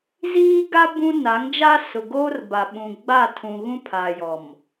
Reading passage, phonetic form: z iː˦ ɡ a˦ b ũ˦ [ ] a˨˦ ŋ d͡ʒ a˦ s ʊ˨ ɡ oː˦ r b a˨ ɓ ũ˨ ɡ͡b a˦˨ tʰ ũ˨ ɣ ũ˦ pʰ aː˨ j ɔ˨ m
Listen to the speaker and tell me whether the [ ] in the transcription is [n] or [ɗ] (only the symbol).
n